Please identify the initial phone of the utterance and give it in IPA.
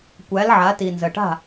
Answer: kʷ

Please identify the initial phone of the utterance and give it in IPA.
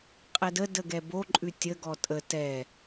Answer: qʼ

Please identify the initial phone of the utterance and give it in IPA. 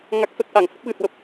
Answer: ŋ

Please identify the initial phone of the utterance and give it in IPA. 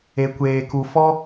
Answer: e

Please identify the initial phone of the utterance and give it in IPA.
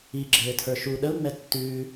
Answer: i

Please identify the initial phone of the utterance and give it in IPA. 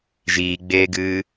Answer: ʒ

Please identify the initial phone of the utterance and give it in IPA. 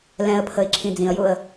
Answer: l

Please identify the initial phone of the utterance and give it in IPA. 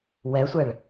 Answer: w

